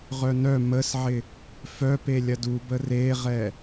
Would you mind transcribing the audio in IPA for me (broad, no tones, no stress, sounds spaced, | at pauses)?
ʁ œ n œ m ə s ʕ ɪ | f œ p e lʲ ɐ d u b ə r e ʁ ɛ